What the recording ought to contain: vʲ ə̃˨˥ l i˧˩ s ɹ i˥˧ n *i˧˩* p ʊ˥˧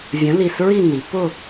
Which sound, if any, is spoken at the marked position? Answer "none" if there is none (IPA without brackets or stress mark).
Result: i˩˧